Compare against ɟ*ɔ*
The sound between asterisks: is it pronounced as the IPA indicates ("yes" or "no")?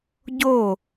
no